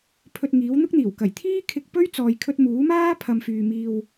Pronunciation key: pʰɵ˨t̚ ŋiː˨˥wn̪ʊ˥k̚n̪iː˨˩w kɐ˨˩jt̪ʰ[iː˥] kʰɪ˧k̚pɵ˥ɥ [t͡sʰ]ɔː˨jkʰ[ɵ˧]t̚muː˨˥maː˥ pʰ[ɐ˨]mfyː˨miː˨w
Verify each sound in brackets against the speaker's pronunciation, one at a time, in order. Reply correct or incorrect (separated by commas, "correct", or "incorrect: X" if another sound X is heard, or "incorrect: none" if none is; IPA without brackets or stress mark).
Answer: correct, incorrect: t͡s, correct, correct